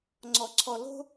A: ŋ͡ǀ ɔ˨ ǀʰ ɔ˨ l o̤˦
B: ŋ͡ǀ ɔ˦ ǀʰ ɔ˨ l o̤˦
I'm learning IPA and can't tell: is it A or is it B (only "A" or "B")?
A